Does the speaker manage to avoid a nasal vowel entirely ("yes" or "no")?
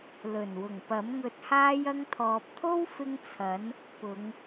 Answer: yes